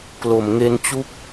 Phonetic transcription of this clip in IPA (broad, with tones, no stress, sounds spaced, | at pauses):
k l o˩˦ m ŋ e˦˥ n t͡ɕ u˥˩ k̚